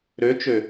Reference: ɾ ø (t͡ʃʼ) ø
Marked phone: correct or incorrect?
incorrect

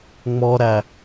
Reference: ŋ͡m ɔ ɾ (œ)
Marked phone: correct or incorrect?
incorrect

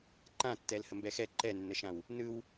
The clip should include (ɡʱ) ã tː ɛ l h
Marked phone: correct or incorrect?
incorrect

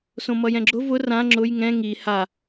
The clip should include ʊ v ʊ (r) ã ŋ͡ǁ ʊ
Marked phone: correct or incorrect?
correct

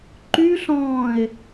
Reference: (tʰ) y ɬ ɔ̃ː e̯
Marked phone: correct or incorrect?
incorrect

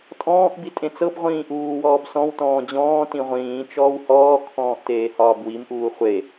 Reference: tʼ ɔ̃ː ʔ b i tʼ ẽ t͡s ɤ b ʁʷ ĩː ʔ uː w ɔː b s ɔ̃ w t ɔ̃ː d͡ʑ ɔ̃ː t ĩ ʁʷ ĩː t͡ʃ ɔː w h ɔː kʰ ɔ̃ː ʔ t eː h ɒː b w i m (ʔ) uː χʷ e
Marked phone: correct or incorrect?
correct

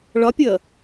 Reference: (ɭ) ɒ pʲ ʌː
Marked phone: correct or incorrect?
correct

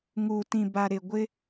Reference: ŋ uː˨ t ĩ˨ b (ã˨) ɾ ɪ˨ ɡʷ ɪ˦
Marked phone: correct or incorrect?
incorrect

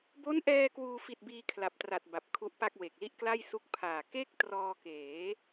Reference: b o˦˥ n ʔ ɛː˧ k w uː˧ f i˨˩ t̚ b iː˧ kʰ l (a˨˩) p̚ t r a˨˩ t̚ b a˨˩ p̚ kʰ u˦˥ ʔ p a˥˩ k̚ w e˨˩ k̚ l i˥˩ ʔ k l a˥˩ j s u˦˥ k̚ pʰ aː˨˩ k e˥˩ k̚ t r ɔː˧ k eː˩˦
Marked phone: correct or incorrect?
correct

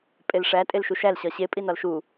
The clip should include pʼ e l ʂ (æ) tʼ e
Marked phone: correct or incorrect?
correct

